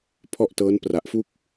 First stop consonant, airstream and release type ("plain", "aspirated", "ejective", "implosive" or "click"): aspirated